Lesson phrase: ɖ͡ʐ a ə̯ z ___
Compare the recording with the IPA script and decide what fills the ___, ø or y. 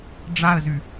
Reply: y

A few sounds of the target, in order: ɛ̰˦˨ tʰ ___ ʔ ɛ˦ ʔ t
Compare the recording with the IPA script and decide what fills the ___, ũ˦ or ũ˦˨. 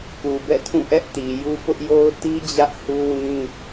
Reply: ũ˦˨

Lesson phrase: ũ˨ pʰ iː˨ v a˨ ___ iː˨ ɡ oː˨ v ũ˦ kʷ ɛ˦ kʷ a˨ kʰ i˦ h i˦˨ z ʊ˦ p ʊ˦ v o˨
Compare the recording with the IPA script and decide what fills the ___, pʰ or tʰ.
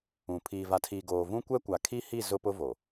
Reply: tʰ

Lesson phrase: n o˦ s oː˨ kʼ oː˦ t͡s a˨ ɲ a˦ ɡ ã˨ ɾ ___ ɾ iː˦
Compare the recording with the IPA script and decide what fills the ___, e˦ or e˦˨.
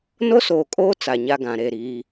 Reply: e˦˨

